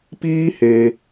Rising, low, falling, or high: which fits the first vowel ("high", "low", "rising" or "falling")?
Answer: high